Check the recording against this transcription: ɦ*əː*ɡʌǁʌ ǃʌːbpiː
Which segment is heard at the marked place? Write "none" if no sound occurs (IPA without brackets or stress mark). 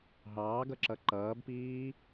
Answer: ɑː